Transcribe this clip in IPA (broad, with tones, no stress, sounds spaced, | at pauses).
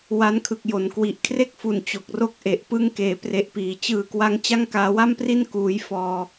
w a˦˥ n kʰ ɯ˨˩ k̚ j o˩˦ n k w i˨˩ ʔ kʰ r e˥˩ k̚ f u˨˩ n t͡ɕ o˨˩ k̚ r o˥˩ k̚ ʔ e˨˩ ʔ p ɯ˦˥ ŋ k eː˩˦ p r e˨˩ ʔ p iː˩˦ t͡ɕ ɯː˨˩ k w a˦˥ ŋ t͡ɕ a˥˩ ŋ k aː˧ w a˥˩ m p r i˥˩ n k uː˧ j f ɔː˧